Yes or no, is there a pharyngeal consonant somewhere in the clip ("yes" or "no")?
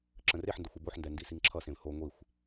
yes